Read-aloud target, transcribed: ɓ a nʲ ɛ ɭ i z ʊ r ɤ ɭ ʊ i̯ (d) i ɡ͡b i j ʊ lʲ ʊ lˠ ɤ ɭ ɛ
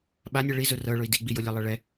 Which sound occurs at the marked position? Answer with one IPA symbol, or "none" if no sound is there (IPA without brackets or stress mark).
d